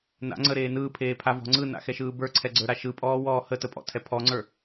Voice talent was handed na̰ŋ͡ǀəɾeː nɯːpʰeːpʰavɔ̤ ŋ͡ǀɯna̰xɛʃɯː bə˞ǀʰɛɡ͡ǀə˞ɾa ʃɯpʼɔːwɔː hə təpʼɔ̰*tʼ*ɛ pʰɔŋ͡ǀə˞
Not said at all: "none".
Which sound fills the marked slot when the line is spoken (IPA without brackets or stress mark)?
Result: tʰ